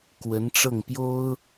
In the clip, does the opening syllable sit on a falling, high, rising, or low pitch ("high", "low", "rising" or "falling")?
rising